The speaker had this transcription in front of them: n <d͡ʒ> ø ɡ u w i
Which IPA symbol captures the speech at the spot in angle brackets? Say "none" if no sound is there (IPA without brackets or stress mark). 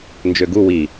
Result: d͡ʒ